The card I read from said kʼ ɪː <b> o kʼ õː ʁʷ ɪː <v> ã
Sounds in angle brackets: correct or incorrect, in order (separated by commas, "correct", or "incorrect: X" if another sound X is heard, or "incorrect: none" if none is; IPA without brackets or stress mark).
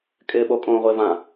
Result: incorrect: ɓ, correct